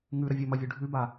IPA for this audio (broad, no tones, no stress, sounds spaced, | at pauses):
ŋ ʉ ɾ ɐ vʲ ɵ m ɐ vʲ ʉ ɖʱ ʉ b a